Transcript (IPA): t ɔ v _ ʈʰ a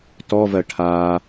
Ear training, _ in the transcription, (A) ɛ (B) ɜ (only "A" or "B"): B